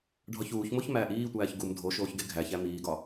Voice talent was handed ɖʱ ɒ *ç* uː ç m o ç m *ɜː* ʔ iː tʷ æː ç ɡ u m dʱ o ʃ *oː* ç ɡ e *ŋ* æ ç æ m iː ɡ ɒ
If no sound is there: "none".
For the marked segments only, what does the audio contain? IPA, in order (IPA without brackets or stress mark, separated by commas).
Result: ç, æː, oː, ɡʱ